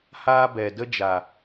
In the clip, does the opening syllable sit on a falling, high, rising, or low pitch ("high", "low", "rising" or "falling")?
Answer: high